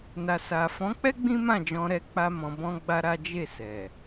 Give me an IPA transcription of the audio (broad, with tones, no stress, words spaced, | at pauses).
na˨sa˨fɔ̃˨˦k͡pɛ˦ ɡ͡bĩ˦mã˦˨d͡ʒɔ̃˧ɾɛ˧ k͡pa˦ mɔ̃˧bɔ̃˦ɡ͡ba˦ɾa˦ d͡ʒe˦˨sɛ˨